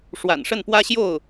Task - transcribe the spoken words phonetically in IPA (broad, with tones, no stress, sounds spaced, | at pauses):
ʂ w a̰˨˩ n ʂ ə˥˩ n p w ä˥ ɕ j o˥˩ ʊ̯